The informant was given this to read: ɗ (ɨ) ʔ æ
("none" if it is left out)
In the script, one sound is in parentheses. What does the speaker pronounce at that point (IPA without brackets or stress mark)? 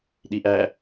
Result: i